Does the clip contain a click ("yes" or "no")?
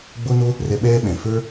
no